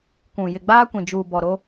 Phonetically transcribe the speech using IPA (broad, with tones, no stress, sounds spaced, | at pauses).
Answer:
kʷ ũ˨ j ɪ˨ ɡ͡b aː˦ kʷ ĩ˨ d͡ʒ uː˨ b ɔ˨ ɾ o˦